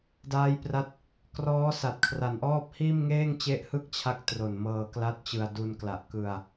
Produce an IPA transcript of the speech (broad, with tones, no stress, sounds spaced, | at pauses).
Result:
d aː˦˥ j p r a˦˥ t̚ | k r ɔː˦˥ s a˨˩ t̚ kʰ r a˨˩ n ʔ ɔː˥˩ p̚ h iː˥˩ m ŋ eː˥˩ ŋ t͡ɕ e˦˥ ʔ h ɯ˥˩ k̚ t͡ɕʰ a˦˥ k̚ t r o˨˩ n m ɤː˧ k l a˦˥ t̚ t͡ɕ ɯ˧ a̯ d u˧ n k l a˨˩ ʔ k ɯ˧ a̯